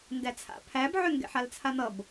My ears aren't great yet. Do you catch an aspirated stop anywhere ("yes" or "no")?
yes